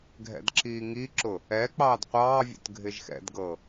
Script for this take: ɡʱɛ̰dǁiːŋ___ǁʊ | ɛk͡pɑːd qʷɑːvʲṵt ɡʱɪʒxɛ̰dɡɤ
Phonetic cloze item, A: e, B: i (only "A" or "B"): B